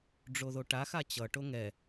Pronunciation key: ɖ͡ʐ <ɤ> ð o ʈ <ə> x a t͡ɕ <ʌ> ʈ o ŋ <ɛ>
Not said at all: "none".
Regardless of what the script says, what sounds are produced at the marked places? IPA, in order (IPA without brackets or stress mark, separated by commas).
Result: o, a, ʌ, ɛ